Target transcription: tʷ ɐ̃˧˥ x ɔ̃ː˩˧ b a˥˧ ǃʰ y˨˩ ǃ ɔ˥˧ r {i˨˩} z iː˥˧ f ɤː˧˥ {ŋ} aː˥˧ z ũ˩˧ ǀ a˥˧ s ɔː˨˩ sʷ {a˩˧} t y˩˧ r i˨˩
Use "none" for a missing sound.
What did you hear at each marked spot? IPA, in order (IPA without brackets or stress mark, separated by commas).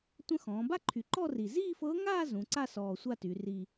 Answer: i˨˩, ŋ, a˥˧